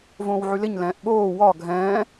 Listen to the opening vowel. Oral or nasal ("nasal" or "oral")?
nasal